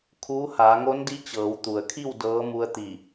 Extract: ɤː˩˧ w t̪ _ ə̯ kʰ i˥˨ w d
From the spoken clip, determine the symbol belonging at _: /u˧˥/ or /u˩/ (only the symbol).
u˩